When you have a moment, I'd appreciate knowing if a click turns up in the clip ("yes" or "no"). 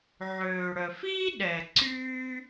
yes